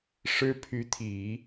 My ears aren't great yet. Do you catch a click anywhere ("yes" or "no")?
no